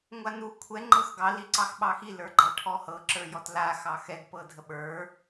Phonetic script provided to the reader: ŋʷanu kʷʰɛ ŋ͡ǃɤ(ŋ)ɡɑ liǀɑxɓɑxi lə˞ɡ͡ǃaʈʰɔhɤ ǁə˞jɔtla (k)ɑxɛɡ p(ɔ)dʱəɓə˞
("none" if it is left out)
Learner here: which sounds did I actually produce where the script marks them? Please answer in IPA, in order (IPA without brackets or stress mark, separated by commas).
x, x, ɤ